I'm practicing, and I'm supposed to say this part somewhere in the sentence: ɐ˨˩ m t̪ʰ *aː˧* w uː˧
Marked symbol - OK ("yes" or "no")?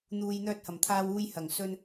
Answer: yes